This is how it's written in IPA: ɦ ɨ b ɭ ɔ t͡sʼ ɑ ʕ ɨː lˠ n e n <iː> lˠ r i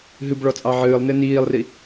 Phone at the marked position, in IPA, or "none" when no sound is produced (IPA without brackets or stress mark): iː